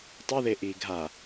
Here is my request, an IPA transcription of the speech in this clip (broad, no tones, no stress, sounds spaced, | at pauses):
tˤ ɛ ð e ʔ iː ɡʱ a